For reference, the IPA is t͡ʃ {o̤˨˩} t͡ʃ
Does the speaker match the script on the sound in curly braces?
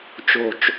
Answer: yes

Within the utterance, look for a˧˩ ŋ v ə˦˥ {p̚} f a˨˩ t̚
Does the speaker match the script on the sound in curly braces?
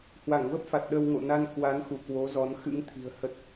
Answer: yes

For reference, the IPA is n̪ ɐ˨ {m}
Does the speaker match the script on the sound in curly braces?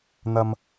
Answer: yes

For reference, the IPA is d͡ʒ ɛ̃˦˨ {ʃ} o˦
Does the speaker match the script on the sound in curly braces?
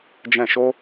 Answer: yes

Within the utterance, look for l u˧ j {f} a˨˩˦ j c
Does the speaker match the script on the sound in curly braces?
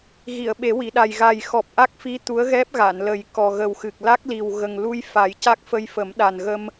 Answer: yes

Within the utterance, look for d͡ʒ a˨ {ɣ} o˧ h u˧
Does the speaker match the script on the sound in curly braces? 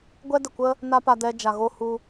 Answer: yes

